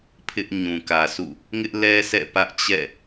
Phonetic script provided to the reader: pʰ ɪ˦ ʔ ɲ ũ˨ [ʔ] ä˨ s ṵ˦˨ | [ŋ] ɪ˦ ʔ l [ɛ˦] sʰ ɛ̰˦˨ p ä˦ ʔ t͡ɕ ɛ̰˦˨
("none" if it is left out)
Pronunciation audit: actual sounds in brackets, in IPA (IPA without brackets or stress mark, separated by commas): k, ŋ, ɛ˦